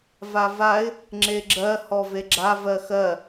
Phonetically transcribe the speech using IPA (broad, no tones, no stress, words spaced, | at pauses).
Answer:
vavaɪ̯ | ŋ͡ǁeɡ͡ǁɜ hɔveɡ͡ǁa vɜxɜ